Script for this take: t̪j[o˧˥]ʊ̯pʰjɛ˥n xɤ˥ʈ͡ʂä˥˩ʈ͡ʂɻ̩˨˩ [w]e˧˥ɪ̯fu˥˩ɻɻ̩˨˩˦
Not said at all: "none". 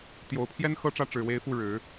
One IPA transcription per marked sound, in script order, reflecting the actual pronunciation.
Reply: o˨˩, w

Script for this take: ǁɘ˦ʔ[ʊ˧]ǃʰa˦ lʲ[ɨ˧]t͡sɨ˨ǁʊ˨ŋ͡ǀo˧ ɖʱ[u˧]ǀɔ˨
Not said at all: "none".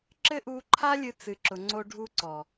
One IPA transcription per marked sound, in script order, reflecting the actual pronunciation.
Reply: u˧, ɨ˧, u˧

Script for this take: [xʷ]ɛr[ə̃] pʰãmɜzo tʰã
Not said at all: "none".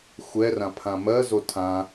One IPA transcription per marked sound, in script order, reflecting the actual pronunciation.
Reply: xʷ, ã

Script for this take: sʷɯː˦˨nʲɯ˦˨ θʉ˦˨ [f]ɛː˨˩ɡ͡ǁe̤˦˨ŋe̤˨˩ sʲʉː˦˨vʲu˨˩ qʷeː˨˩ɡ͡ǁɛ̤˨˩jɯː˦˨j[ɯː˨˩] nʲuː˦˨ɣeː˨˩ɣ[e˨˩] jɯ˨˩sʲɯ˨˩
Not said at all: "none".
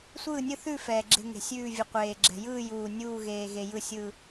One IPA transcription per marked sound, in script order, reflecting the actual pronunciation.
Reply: f, uː˨˩, e˨˩

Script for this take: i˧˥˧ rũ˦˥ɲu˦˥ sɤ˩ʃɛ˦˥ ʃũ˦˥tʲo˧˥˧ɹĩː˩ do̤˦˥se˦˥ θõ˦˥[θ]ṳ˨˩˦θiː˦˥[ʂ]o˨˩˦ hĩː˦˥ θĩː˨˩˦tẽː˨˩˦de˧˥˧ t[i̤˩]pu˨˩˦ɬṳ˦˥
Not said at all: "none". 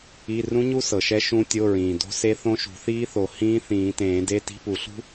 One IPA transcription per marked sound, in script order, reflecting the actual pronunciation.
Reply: ʃ, θ, i̤˧˥˧

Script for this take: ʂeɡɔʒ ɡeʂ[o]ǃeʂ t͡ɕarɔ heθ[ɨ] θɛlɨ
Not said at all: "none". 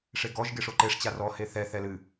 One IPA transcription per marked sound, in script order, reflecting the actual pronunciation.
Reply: o, ɛ

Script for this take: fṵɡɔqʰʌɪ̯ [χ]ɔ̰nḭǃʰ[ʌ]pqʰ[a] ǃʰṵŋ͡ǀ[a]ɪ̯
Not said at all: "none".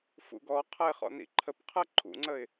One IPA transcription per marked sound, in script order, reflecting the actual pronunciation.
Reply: χ, ə, ʌ, ə

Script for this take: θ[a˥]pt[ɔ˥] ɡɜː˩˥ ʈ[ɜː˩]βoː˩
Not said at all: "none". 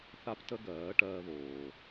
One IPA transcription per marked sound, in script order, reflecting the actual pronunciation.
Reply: a˥, ə˥, ɜː˥

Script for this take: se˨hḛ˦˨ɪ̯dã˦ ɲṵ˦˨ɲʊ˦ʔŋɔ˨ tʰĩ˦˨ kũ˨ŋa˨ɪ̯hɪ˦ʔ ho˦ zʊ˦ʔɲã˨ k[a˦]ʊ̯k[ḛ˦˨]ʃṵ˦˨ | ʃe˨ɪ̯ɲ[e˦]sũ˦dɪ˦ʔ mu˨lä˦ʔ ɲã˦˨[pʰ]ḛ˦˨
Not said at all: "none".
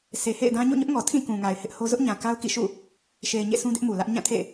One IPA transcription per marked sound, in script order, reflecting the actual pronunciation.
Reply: a˦, ḭ˦˨, ḛ˦˨, tʰ

